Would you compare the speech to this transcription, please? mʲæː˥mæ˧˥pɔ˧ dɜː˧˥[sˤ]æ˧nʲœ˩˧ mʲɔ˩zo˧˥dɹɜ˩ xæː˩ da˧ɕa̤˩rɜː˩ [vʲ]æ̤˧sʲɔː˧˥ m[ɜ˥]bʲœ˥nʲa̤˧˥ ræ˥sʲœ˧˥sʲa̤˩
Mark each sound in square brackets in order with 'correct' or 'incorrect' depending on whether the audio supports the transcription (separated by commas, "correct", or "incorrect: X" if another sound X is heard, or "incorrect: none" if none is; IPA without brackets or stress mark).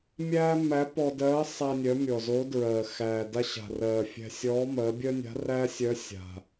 correct, incorrect: fʲ, incorrect: ɜ˩˧